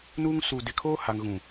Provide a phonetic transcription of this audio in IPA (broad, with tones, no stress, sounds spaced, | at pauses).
n u˦ ŋ s uː˨ d ɪ˨ kʰ oː˦ h a˨ ŋ ɣ ũ˨